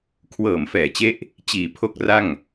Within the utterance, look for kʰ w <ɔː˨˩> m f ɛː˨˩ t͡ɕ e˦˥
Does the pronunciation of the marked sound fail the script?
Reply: yes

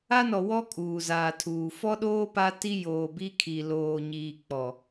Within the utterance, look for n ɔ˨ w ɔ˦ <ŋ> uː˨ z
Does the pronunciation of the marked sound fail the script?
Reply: yes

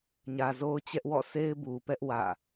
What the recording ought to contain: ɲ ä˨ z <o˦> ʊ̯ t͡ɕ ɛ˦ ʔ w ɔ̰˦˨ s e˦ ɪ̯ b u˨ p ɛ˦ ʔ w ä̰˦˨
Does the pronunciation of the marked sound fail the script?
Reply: no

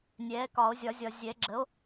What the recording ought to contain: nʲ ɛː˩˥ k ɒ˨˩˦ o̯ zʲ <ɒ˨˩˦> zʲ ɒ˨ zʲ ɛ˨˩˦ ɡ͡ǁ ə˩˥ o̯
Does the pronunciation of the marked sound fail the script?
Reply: no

